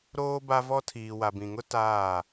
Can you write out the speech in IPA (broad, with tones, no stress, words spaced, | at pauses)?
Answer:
ɾoː˦ba˦vɔ˦ tʰiː˨wa˨bĩ˨ŋʊ˦ taː˦˨